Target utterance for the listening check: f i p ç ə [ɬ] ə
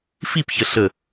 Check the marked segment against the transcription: correct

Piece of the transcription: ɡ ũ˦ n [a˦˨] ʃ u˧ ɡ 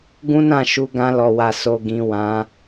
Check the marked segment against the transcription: incorrect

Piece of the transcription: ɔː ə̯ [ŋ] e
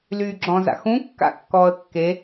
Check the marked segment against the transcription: incorrect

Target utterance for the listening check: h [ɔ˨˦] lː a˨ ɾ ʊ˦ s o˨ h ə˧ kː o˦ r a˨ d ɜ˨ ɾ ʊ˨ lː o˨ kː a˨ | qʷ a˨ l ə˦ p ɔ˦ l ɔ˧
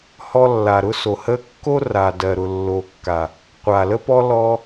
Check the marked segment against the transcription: incorrect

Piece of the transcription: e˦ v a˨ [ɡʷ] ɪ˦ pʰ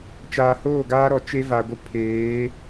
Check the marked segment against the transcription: correct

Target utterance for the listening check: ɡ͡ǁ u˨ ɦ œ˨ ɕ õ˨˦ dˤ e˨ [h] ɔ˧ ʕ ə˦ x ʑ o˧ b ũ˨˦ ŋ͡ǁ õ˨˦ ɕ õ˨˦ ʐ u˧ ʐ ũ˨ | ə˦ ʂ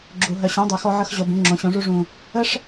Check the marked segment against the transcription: incorrect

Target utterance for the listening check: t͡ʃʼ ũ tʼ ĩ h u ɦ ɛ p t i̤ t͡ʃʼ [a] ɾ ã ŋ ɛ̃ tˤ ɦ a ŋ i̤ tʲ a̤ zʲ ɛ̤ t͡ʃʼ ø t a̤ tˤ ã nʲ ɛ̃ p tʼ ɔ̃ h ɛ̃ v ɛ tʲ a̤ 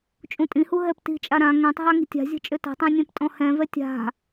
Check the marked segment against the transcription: correct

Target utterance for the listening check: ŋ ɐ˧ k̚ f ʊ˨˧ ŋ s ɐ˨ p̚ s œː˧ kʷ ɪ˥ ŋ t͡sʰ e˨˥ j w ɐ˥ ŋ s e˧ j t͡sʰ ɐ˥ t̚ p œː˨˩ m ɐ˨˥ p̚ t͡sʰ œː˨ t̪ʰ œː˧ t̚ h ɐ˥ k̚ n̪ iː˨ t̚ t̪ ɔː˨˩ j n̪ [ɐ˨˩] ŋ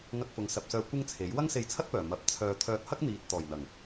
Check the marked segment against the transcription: correct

